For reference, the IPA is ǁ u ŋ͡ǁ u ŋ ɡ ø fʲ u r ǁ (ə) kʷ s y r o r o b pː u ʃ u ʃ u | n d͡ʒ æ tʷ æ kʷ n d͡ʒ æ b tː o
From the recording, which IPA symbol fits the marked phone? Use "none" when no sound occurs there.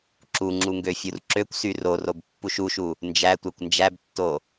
ø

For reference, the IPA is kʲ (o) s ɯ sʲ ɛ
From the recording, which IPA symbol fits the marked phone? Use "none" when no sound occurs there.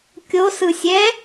o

